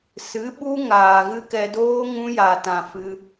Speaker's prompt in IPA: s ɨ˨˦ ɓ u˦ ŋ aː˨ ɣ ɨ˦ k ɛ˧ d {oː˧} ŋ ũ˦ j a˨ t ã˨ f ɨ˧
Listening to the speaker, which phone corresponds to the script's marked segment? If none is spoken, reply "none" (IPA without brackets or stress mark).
oː˦